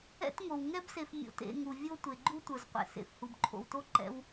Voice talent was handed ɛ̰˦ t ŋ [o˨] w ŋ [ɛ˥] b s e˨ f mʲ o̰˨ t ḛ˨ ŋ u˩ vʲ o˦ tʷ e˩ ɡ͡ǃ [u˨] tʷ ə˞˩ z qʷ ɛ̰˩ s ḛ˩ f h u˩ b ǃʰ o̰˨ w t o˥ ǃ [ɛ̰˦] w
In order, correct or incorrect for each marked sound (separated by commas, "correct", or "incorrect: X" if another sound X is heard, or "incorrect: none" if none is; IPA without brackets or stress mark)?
incorrect: o˩, correct, incorrect: u˥, correct